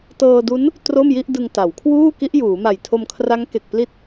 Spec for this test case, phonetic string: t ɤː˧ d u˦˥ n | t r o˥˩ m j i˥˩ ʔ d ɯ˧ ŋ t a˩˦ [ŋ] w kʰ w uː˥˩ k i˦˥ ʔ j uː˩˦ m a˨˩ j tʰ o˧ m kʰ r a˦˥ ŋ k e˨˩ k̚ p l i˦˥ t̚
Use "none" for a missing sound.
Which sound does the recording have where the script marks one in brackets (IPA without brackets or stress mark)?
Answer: none